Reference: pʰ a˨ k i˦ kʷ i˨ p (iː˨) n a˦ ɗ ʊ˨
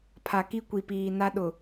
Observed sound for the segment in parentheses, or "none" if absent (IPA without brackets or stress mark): iː˨